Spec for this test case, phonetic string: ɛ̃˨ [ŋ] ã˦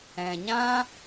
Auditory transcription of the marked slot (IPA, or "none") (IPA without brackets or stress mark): ɲ